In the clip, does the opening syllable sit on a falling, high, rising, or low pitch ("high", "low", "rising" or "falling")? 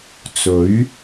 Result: rising